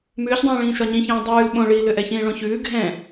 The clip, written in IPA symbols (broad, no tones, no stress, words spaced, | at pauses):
mʉːçdˤĩːɭĩː ʃɒɲĩçĩː dˤʉːl ɓõɭiːlʏʔɛ çĩːɭõçʉː ɡʱɛ̃